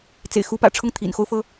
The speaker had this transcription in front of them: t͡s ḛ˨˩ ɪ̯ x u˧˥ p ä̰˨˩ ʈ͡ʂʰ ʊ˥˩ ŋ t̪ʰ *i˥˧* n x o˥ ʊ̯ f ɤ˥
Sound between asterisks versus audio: incorrect: ḭ˨˩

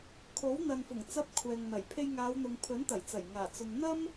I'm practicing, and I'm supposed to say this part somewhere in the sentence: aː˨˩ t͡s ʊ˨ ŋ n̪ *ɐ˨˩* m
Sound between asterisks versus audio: incorrect: ɐ˥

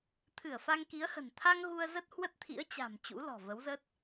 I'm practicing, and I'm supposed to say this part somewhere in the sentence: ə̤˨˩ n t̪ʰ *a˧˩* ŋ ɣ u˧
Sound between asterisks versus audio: incorrect: a˧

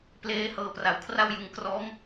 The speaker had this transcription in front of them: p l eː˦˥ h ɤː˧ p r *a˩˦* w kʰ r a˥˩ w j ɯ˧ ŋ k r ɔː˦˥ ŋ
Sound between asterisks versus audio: incorrect: a˨˩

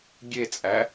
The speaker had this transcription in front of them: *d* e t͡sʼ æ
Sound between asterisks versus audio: incorrect: ɡʲ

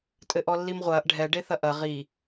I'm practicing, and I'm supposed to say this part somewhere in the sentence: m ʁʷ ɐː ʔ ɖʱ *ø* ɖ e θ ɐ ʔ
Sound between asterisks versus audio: incorrect: ɛ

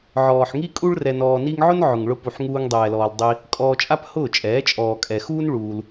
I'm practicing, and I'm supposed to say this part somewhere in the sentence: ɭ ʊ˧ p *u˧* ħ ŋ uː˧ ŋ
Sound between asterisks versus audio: incorrect: u˨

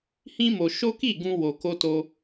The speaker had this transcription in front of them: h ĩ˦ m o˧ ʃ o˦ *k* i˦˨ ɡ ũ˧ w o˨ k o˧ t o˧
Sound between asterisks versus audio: correct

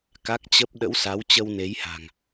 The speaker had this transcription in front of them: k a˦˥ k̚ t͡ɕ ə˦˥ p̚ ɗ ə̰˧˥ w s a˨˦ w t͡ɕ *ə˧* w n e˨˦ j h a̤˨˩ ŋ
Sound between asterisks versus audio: correct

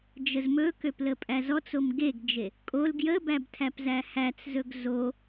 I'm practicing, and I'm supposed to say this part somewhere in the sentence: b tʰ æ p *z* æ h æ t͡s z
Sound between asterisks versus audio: correct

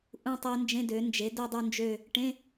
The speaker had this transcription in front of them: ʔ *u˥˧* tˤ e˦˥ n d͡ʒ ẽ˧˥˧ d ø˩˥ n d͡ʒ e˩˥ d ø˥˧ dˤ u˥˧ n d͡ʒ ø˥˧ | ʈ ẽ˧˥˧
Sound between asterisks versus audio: incorrect: ũ˥˧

